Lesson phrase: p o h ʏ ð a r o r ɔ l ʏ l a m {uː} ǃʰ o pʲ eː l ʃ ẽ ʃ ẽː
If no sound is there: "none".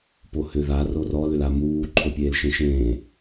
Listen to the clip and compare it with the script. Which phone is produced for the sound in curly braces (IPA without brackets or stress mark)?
uː